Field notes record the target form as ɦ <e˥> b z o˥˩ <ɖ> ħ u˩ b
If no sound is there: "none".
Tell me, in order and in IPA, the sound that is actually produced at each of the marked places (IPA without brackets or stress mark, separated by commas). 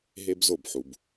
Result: e˥, b